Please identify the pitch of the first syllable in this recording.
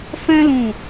high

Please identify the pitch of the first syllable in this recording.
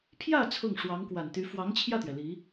falling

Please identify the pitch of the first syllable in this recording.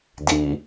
low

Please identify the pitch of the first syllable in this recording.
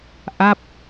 falling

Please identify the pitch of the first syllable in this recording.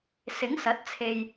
rising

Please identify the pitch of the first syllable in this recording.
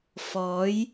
rising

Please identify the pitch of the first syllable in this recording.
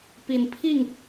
low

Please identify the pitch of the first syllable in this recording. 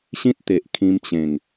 high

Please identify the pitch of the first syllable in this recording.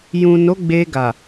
low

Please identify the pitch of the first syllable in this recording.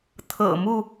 low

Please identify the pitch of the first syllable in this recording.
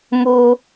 high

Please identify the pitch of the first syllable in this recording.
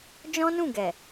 high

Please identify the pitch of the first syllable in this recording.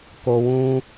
low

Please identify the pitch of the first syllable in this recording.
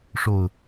falling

